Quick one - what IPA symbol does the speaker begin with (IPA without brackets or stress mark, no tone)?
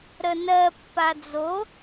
ɾ